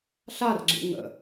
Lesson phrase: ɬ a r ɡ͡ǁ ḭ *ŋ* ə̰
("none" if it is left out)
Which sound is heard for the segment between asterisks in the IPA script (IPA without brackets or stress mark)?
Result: ŋ